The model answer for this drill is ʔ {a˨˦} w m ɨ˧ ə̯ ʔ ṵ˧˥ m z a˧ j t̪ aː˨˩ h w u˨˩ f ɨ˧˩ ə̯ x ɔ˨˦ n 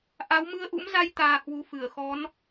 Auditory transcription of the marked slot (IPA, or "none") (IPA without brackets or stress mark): a˨˦